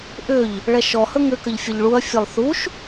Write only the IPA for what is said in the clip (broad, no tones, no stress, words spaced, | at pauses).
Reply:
ʔʏʎ | ɭɛʃɔhɵ ŋʏkəʎ fʲəʎɭuɐ̯fʲelˠ θuʃ